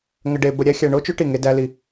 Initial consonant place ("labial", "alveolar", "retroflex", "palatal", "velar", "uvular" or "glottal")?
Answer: velar